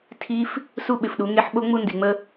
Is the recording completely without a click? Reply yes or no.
yes